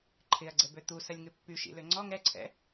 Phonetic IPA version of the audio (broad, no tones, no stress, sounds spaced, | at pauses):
ǃʰ ɪ ɐ̯ ɡ͡ǀ ɛ b ø t̪ u s ɐ lʲ ŋ ʏ pː y ʃ ḭ l ø ŋ͡ǀ ɔ ŋ ɛ ǀʰ ɛ̰